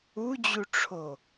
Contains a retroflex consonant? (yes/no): yes